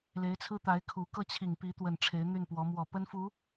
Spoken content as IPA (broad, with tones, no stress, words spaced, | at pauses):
le˧˥ɪ̯t͡sʰɹ̩˥t̪a˧˥ɪ̯kʰu˨˩ kɤ˥˩t͡ɕʰi˨˩ŋ pi˧˥ t̪wə˨˩n ʈ͡ʂʰe˧˥ɪ̯n̪y˥˩npwɔ˧˥ mwɔ˨˩pə˥nfu˧˥